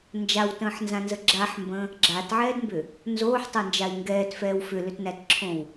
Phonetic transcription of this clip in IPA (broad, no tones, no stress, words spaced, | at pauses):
nd͡ʒawtə̃ːħnzãnzə ɡ͡ǁaħmbə̃ | ɡ͡ǁatʕɛːdmbʏ | nzoːħtˤɛnd͡ʒai̯ ŋɡɛːtfɛːw fʏlʏtnætǁʰõw